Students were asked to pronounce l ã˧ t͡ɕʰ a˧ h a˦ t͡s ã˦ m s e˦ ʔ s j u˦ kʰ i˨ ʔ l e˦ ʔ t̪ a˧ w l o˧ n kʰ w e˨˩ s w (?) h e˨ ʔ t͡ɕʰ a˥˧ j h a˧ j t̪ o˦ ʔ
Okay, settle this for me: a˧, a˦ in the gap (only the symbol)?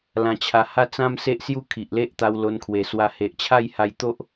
a˧